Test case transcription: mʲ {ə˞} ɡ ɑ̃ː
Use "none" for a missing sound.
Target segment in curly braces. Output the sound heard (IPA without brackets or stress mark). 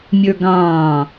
ə˞